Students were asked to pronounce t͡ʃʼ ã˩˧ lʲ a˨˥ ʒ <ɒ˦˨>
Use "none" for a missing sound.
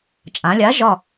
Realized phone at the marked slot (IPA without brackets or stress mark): ɒ˦˨